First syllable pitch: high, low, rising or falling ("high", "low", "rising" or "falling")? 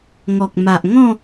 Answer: low